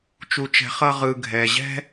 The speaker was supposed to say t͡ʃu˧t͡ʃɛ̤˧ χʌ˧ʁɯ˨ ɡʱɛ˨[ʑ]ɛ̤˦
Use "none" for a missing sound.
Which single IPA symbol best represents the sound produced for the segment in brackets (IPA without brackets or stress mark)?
ʑ